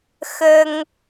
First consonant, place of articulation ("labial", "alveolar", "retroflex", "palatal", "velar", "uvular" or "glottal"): velar